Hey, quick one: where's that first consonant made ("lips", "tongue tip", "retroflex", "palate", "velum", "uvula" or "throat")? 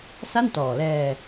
tongue tip